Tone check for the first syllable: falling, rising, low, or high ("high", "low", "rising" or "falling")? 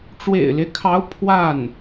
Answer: low